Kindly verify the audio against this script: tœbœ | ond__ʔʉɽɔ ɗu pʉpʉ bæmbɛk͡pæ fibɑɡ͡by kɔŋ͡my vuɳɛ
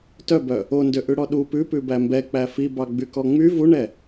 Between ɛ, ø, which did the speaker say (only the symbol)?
ø